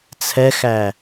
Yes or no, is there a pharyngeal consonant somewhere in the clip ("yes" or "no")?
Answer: no